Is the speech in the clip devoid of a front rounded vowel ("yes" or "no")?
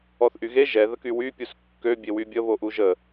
no